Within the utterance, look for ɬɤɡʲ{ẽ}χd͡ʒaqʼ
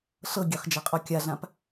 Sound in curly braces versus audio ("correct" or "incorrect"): incorrect